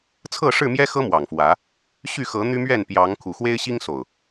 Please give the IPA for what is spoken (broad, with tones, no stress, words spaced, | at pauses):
t͡sʰɤ˥˨ʂɻ̩˥˨mjɛ˦xɤ˦ mwɑ˨˩ŋfwä˨˦ | ɕy˥˨xɤ˨˦ n̪y˦mɥɛ˥˨n pjɑ˨˦ŋ kʰu˨˩xwe˦ɪ̯ɕi˦ŋ so˨˩ʊ̯